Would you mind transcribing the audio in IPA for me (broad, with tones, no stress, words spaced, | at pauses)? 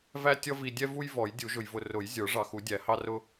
væ˦ tʲʌ˦vi˨ dʲɛ˦vu˦j vɔ˨˩˦jdʲu˨˩˦ʒʊ˨j vʊ˨rʊ˨˩˦j zʲə˞˨˩˦ ʐɑ˨xu˨˩˦ dʲæ˨˩˦hɑ˦rʊ˦